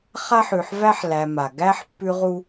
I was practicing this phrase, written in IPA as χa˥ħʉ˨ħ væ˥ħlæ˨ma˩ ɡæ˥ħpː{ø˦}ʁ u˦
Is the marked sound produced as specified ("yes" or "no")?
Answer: no